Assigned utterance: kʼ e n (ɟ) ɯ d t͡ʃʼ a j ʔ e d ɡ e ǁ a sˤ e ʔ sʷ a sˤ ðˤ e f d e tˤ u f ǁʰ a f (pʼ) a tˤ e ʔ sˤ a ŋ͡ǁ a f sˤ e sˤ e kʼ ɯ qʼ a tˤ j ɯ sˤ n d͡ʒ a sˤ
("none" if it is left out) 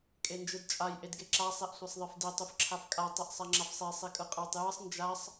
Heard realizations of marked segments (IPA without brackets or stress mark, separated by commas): d͡ʒ, kʼ